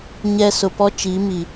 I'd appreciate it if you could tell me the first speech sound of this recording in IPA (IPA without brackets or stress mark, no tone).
ɲ